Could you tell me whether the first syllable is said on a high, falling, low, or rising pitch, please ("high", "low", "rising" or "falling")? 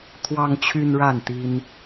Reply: high